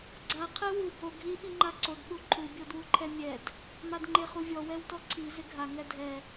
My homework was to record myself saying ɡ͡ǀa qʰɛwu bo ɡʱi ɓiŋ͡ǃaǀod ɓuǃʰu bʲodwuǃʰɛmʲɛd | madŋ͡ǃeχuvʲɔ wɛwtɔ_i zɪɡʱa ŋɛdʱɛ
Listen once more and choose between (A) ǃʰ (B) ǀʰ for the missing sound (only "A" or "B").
B